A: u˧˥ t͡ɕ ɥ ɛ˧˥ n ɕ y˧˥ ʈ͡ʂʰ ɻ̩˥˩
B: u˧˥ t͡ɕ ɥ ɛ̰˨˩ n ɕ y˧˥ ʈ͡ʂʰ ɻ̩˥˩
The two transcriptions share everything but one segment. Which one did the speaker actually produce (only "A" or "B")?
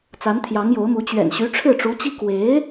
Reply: B